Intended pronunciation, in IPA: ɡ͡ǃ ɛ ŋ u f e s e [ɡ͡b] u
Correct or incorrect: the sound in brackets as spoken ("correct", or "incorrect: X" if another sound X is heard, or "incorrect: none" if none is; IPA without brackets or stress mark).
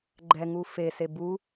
incorrect: b